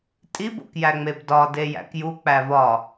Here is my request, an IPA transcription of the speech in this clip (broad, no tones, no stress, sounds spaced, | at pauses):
tʼ i b o̰ k j æ ŋ͡m e b d ɒ d e j æ̰ k j u k͡p æ v ɒ